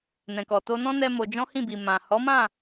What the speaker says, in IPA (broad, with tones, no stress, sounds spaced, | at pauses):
n ɛ̃˨ k ɔ˨ t o˧ n ɔ̃˦ n ɛ˦ m o˧ d͡ʒ ɔ̃˦ h ĩ˦˨ b i˨ m ã˨ h ɔ˨˦ m ã˦˨